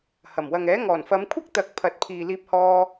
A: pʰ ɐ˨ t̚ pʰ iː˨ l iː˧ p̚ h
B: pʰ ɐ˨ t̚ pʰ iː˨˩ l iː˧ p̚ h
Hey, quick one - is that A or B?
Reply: A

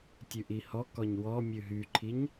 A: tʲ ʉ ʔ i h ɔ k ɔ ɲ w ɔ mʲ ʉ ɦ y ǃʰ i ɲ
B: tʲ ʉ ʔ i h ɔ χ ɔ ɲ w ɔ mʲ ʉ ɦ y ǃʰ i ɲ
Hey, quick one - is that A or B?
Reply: A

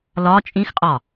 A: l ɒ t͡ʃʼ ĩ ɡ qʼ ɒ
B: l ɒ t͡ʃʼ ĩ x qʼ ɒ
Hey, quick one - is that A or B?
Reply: B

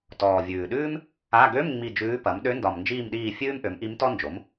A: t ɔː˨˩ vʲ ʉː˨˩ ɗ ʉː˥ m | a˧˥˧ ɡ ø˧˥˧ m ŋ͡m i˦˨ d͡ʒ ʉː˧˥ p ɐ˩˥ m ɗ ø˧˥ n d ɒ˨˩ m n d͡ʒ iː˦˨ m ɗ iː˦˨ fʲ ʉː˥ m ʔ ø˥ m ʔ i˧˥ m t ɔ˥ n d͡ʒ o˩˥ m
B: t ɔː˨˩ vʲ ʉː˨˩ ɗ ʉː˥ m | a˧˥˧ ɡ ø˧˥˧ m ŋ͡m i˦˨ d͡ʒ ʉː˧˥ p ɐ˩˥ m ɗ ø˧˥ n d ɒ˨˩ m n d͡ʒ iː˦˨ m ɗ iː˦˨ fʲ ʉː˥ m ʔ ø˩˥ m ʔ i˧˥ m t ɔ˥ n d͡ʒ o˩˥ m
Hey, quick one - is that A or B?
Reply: B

